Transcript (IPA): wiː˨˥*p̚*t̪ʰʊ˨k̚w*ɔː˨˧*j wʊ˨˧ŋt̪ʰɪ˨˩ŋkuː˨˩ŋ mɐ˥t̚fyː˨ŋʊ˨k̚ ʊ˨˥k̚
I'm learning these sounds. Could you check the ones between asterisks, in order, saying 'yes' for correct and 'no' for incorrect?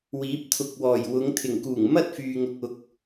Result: yes, no

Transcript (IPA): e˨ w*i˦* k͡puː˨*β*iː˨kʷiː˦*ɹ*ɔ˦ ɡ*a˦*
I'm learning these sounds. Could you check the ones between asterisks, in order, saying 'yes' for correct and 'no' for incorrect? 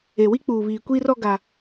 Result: yes, yes, no, yes

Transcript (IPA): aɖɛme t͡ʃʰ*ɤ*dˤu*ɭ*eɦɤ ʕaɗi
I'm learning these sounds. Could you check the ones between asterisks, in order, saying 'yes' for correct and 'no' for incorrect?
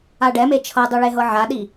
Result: yes, yes

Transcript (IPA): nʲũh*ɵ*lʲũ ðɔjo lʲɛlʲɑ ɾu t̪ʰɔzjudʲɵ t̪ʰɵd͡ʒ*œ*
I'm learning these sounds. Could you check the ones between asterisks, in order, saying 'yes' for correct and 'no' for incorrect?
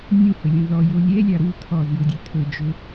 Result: yes, no

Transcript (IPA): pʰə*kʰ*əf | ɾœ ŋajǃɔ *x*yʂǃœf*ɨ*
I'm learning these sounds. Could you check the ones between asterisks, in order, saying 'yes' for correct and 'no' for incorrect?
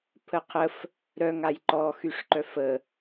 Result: no, yes, no

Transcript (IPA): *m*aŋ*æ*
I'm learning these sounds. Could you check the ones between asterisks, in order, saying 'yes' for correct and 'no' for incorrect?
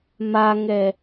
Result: yes, no

